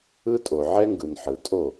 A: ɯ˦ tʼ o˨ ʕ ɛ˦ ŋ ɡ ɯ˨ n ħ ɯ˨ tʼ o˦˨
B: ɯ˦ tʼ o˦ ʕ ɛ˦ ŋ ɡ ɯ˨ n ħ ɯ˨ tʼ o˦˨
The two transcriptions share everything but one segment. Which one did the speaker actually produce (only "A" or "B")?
A